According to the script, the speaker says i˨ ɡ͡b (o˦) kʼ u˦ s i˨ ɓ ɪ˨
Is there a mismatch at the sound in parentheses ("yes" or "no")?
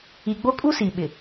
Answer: no